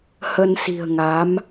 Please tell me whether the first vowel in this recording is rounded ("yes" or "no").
no